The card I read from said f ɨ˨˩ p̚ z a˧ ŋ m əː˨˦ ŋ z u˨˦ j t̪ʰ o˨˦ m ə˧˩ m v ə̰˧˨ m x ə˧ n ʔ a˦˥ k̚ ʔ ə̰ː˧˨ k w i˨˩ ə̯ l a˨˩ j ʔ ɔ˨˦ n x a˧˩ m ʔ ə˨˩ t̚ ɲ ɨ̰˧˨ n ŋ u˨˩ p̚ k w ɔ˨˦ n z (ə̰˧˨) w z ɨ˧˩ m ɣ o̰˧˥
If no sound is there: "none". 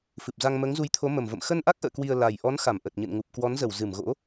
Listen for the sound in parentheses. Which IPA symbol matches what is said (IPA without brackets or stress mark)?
ə˧˩